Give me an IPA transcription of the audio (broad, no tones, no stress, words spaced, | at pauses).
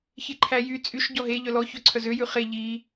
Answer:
çeǃʰæjy t͡sʼyʃ ɟɔɦe ʎœlɔ çœǀʰœzø jʉχe ʎi